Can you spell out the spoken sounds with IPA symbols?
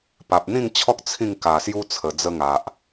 p a˨ p̚ n̪ ĩ˥˧ ŋ t͡ɕʰ ɔ˦ k̚ t͡sʰ ĩ˥˧ ŋ k a˨˩ s j u˧ t͡sʰ ə˨˩ d͡z ə˦ ŋ a˨ ʔ

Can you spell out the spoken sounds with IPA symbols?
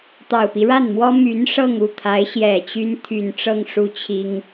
t̪ ɑ˨˩ ʊ̯ p i˦ ɻ a˥˩ n m w ɔ˥ m y˧˥ n ʂ ɤ˥˧ ŋ u˥˩ t̪ʰ a˧˥ ɪ̯ ɕ j ɛ˨˩ t͡ɕ y˥ n t̪ʰ y˨˩ n ʈ͡ʂ ɤ˥˧ ŋ ʂ u˥˩ t͡ɕʰ i˥ ŋ

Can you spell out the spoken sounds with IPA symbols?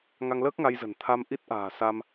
ŋ a˧ ŋ l əː˦˥ k̚ ŋ a˧ j z ə̤˨˩ n t̪ʰ a˧ m ʔ i˦˥ t̚ ʔ a̤ː˨˩ s a˧ m

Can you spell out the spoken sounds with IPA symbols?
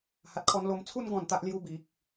h a˨ t̚ kʰ ɔ˧ n l o˨˩ m t͡sʰ u˧ n ɡ ɔ̃˨˩ n t̪ a˨ ʔ l j u˧ b i˨ k̚

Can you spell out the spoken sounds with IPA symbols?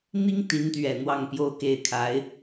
n̪ i˥ ŋ t̪ i˧˥ n t̪ ɥ ɛ˨˩ n̪ w ɑ˥˧ ŋ p j o˥˧ ʊ̯ k e˥˩ ɪ̯ kʰ a˧˥ ɪ̯

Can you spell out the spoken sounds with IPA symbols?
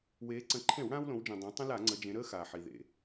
w eː˩˧ ǀ ə̃˩˧ ǃʰ ẽ˧˩˧ w ɽ ãː˦ w l õ˩˧ w d͡ʒ ĩ˩ dˤ ẽ˩˧ tˤ ə̃˦ l a˧˩˧ ŋ͡ǀ ə˩˧ d͡ʒ ẽ˩˧ ɾ əː˦ x aː˩ ħ i˩ ð ḛ˩

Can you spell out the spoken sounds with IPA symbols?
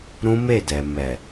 ɾ ũ˦ m e˦˨ d ɛ˨ m ɛ˨

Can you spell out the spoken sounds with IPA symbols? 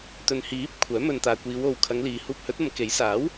t̪ ɵ˨ n h iː˨˥ p̚ kʷʰ œː˨˥ m ɵ˧ n t̪ aː˨ kʷ iː˨˧ w o˨ w kʰ ɐ˨˧ ŋ l iː˨ h uː˧ p̚ h ɵ˨˥ t̚ ɐ˨˧ m k e˨˥ j s aː˨˥ w

